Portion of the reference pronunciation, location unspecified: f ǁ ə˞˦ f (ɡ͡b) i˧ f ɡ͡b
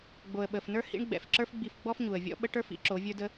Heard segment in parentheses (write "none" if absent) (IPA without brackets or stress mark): ɡ͡b